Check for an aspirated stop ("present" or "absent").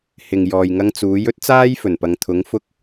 present